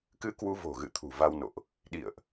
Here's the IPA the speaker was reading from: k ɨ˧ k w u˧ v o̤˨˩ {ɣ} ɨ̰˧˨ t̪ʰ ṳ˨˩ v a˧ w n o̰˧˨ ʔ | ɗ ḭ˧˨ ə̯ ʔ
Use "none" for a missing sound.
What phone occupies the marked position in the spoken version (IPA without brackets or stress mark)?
ɣ